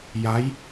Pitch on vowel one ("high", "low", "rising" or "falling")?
rising